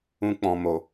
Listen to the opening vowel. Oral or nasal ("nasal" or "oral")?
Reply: nasal